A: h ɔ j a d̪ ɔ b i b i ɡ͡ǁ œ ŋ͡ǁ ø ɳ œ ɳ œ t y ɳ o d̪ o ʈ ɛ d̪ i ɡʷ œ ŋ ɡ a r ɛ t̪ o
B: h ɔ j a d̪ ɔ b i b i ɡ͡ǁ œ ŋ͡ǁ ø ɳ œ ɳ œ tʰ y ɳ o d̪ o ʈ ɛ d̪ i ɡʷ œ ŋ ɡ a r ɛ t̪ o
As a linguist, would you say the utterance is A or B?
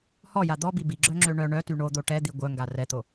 A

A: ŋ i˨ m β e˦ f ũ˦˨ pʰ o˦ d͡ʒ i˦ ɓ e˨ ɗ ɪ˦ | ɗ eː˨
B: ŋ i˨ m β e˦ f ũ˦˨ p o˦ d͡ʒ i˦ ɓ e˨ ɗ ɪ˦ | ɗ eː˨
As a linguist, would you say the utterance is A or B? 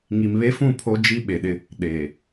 A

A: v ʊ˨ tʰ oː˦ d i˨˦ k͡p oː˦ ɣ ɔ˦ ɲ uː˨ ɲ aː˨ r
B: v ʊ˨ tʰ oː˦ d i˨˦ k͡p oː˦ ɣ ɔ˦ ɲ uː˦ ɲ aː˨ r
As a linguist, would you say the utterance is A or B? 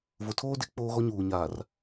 A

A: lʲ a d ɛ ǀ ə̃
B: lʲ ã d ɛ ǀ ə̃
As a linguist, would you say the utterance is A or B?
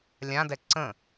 B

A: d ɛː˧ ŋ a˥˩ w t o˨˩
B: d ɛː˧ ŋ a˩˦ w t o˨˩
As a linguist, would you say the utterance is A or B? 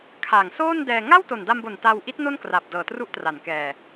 A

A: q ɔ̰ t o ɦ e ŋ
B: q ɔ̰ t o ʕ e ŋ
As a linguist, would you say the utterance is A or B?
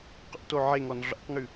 B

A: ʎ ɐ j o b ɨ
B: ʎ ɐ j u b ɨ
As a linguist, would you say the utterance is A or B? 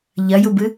B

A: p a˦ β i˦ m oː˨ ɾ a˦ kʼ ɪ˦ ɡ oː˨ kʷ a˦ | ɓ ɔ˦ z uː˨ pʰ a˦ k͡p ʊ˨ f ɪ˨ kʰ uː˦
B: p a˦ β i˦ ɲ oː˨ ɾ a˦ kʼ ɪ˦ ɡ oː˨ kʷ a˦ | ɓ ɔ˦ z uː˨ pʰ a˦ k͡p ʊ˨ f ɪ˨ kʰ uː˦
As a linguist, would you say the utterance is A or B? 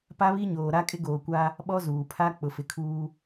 B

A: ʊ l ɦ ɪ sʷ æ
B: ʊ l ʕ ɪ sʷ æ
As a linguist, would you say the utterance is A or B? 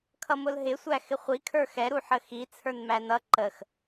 A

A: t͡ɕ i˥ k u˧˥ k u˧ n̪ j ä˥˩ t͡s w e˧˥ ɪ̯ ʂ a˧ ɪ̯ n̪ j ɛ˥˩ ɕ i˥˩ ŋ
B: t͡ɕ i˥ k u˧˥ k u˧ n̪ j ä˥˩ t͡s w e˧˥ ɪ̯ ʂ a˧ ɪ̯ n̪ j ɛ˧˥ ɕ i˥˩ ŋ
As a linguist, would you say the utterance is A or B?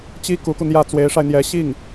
B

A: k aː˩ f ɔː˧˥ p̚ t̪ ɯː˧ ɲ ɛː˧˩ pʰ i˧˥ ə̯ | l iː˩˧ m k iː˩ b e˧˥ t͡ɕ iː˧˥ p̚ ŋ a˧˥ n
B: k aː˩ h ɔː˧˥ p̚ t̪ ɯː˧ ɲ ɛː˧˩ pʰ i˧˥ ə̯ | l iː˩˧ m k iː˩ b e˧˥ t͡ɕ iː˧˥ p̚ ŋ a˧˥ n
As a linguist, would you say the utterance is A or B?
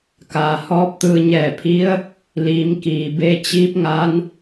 B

